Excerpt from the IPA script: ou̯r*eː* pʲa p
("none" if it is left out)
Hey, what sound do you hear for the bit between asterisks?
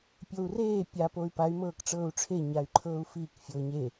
eː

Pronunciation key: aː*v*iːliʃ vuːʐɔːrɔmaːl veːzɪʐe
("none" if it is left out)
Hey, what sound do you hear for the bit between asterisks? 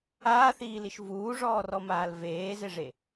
θ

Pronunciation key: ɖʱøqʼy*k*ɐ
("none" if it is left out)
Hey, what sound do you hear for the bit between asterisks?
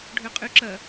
ǁ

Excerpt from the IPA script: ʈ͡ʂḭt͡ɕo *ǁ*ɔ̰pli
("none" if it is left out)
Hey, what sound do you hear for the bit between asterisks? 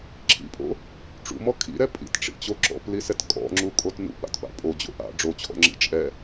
ǁ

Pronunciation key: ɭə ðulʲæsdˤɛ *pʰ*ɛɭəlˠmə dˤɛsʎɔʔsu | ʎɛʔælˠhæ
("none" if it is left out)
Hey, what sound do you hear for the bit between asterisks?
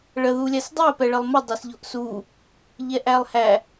p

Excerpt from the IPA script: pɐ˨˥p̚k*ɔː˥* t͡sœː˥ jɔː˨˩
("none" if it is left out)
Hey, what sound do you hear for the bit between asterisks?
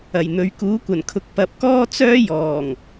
ɔː˥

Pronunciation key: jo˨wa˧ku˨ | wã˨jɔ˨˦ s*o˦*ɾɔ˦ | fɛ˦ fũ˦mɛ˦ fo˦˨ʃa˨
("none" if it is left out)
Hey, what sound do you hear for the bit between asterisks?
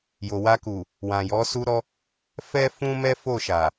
u˦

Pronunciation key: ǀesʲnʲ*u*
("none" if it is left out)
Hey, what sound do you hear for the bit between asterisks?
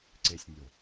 o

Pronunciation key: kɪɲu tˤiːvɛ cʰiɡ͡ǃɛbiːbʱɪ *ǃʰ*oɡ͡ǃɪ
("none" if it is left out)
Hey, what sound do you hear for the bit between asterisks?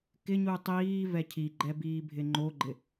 ŋ͡ǃ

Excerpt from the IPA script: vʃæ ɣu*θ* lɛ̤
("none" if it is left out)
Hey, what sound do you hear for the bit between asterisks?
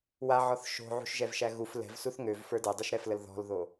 f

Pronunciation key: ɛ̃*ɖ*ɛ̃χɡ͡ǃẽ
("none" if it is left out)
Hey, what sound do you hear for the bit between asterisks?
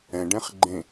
ɖ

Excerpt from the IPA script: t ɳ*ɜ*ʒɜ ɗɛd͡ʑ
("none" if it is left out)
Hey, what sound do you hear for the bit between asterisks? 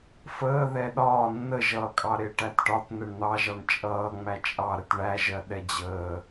æ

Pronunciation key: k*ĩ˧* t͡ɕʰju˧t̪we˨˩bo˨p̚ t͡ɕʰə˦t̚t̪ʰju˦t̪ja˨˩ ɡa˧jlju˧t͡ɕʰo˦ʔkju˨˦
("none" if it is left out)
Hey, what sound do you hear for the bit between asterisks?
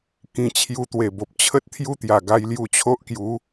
ĩ˧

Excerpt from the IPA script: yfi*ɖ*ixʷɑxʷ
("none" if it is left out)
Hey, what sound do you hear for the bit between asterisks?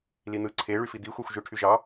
d̪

